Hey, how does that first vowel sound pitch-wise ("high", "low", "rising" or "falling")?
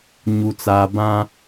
low